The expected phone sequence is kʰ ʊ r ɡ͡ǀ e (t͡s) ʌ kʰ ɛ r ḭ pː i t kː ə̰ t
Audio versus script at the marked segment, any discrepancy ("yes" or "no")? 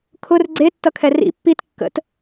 yes